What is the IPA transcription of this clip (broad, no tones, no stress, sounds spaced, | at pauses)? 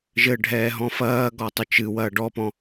ʒ ɘ ɖʱ ɛː ɦ ɔ̃ f ɐː ɡ ɔ tˤ ɘ t͡ʃ ɨ w ɐː ɖ ɔ p ɔ̃